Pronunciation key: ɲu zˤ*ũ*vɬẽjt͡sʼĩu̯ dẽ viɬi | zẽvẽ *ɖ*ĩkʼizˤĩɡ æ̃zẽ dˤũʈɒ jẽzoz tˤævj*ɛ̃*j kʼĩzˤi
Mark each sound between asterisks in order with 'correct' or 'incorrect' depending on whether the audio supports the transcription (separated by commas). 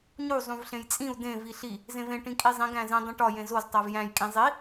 correct, incorrect, incorrect